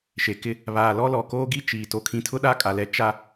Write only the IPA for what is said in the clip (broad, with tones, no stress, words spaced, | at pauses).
ʃe˨kɪ˦ | βaː˨lɔ˦lɔ˨ koː˦ɡi˦ t͡ʃiː˨ to˨kʰĩ˨tʰʊ˦ ɗa˦kʼa˨lɛ˨˦ t͡ʃa˦